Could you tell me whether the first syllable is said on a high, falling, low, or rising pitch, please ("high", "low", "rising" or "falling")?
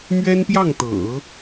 high